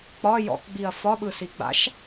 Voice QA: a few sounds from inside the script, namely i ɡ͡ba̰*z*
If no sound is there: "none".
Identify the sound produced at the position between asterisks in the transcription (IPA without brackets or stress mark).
ʃ